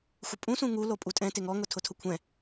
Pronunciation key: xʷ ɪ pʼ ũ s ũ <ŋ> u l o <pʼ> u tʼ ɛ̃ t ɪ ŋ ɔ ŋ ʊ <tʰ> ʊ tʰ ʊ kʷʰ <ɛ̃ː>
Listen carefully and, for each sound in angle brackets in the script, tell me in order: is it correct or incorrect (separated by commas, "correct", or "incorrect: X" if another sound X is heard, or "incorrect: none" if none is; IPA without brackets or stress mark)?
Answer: correct, correct, correct, incorrect: ɛ̃